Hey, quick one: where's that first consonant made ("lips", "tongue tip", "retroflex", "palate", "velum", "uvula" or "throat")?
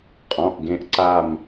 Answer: uvula